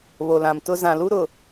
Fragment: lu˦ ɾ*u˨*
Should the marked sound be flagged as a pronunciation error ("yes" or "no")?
yes